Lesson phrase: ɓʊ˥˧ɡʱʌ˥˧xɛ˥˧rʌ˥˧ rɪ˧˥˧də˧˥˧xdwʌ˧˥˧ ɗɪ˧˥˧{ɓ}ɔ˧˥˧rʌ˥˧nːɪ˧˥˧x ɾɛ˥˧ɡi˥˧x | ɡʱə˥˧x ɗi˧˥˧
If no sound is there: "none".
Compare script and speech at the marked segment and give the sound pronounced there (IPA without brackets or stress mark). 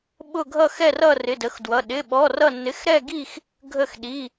ɓ